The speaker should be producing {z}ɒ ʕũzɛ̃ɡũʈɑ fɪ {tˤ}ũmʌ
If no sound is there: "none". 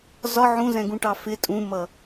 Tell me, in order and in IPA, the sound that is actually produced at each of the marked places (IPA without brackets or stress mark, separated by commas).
z, tʼ